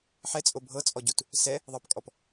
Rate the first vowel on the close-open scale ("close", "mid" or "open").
mid